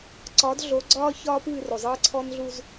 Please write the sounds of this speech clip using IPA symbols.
ǀ ɒ˨˦ d ɮ o˨˦ ɡ͡ǀ ɒː˦ ç ɒː˦ p ɨː˦˨ r o˨ zˤ ɨː˦ ǀʰ ɔ˦ n ɮ u˦ z

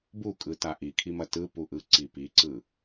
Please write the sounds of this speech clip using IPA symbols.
b u kʼ ɯ t a ʔ i kʰ i m ɐ t ɯ p u ʔ ɯ ǀ i p i ǀ ɯ

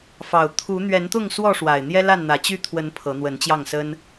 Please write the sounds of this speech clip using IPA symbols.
f ɑ˨˩ ʊ̯ t̪ʰ u˨˦ n̪ ɥ ɛ˨˦ n t̪ ʊ˥˨ ŋ s w ɔ˥˨ ʂ w a˨˩ ɪ̯ n̪ j ɛ˦ l a˥˨ n n̪ ä˨˩ t͡ɕ y˥˨ t̪ʰ w ə˨˦ n pʰ ɤ˨˦ n̪ w ə˨˦ n t͡ɕ j ɑ˥˨ ŋ s ə˦ n

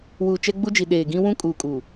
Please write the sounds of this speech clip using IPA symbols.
w uː˨ t͡ʃ ɛ˦ ɡ͡b u˦ d͡ʒ i˨ ɗ eː˨ ɡ ĩ˦ w ũ˦ kʼ uː˨ kʼ u˨

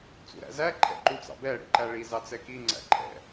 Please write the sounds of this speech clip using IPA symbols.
t͡s ṵ ɾ æ̰ z æ ǃʰ ɛ̰ ǃ u t͡s ɑ̰ b ɛ ɽ ḭ ǃ æ ɭ i z ɑ t͡s ɛ k i ŋ͡ǀ æ̰ ǃʰ ɛ̰

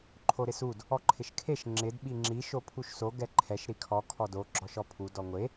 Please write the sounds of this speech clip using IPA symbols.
ǃʰ o ɾ ɪ s u d | ɔ ǃʰ ɪ ʃ kʰ e ʃ ŋ͡ǁ ɪ d ɓ i ŋ͡ǁ i ʃ o pʰ u ʃ s o ɡ ɛ ǃʰ ɛ ʃ ɾ i kʰ ɔ kʰ ɔ d o ɡ͡ǁ ɔ ʃ ɔ pʰ u d ɔ ŋʷ e

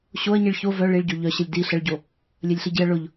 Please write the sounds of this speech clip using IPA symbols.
ɕ o ɐ̯ ɲ i ɭ ç o v œ ɭ i ɭ ɟ o ʎ œ ɕ ə lʲ d i ɬ ə ɭ ɟ o | lʲ œ lʲ ɬ i ɟ i ɐ̯ ɭ ʊ ʎ

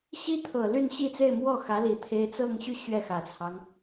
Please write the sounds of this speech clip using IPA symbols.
ɕ i˥ t̪ʰ ɤ˨˩ l y˥˧ n ɕ i˥˧ t͡s e˥˧ ɪ̯ m w ɔ˥˩ x ä˧˥ l i˧˥ t̪ʰ e˥ ɪ̯ t͡s ɤ˥˧ ŋ ɕ y˥˧ ɕ ɥ ɛ˥˩ x ä˨˩ t͡sʰ ɑ˦ ŋ

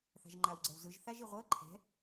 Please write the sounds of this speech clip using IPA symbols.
θ a̤ ʒ ŋ͡ǃ a w ɡ͡ǀ ɛ w z ɯ ʒ θ a ʒ i ʁʷ ɤ ǃʰ ɛ̤

